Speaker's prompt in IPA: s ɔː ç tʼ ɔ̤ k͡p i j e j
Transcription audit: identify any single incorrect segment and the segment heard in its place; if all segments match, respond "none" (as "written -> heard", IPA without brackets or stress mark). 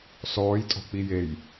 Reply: ç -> j